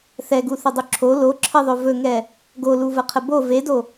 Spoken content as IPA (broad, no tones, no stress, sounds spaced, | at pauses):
θ ɛ ɡ u θ ə dˤ ɵ ǁʰ o l o ǁʰ ɘ ðˤ ɵ v ɵ ŋ ɛ | ɡ o l u v ə qʰ ə b o v e d o